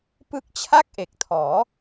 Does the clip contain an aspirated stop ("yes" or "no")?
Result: yes